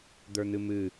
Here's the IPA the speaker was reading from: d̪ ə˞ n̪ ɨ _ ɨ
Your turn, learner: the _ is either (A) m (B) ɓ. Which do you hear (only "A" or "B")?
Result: A